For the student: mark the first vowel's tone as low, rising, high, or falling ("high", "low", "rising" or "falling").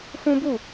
high